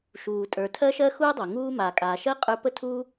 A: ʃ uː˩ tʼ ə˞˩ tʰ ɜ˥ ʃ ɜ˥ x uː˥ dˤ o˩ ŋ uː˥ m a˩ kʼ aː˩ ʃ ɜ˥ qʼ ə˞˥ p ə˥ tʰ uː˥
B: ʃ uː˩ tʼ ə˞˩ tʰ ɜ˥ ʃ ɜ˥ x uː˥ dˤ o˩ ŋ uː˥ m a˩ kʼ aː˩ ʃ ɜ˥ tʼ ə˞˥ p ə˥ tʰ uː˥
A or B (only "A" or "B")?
A